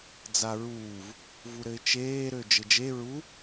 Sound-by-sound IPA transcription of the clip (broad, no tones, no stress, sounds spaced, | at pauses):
d͡z a ɹ uː v | v u ɾ ɘ ɪ̯ t͡ʃ eː ɾ ø d͡ʒ ɘ d͡ʒ e ɹ u